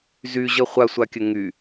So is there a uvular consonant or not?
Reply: yes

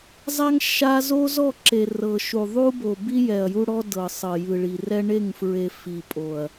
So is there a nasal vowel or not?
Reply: no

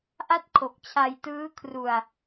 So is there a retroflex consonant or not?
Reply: no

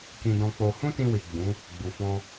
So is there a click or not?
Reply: no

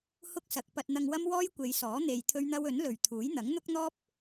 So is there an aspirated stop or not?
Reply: yes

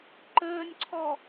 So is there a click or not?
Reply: yes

